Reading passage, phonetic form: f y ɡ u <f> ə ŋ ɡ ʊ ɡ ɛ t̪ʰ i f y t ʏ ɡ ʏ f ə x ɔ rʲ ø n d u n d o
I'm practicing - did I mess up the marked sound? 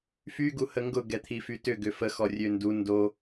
yes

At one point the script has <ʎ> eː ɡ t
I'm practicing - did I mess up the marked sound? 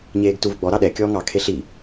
yes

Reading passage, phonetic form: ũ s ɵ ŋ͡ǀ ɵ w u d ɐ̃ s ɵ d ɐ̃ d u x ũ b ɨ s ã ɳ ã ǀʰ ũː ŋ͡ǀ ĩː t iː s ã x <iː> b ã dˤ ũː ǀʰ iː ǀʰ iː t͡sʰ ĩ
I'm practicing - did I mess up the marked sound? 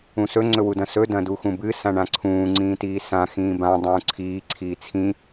yes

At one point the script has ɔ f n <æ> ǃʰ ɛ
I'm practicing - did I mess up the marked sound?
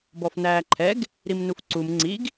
yes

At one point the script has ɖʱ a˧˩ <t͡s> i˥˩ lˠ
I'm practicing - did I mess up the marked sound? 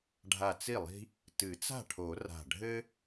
no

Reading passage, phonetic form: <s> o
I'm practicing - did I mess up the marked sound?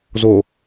yes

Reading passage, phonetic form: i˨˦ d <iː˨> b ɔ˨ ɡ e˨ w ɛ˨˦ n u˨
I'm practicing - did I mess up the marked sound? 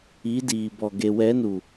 no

